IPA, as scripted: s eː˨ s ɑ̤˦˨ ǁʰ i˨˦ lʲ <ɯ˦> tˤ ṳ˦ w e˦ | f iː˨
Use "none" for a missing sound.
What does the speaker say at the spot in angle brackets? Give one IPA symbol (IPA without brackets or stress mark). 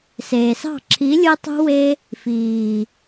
ɯ˦